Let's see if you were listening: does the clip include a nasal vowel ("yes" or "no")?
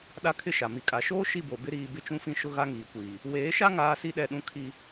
yes